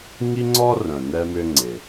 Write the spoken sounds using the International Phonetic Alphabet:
ŋ i˥ ŋ͡ǀ ɔ˥ r œ̃˩ n ɛ˧ m ʏ˧ ŋ͡ǀ ɪ˩

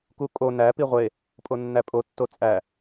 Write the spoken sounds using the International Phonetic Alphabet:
k u kʼ o n æ p i ʁʷ e | pʼ o nː æ pʼ o tː o t͡sʼ æ

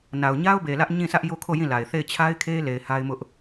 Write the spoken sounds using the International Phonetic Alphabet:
n a˨ ʊ̯ ɲ a˦ ʊ̯ b e˨ l ä˦ ʔ ɲ ĩ˦˨ sʰ ä˦ ʔ j o˦ kʰ o˦˨ j ĩ˦˨ l a˨ ɪ̯ θ e˦˨ ɪ̯ t͡ɕʰ a˦ ɪ̯ kʰ e˦ l e˨ ɪ̯ h a˦ ɪ̯ m ʊ˦ ʔ

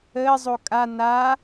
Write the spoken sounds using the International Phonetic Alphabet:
əː zˤ o kʼ a n aː

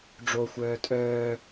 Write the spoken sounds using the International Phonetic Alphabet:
ɖ͡ʐ o xʷ œː tʼ œː

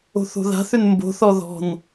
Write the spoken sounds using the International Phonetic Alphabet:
o̤ θ o̤ ð a̤ θ ʏ n m b o̤ θ ɔ ð ɔ̤ n

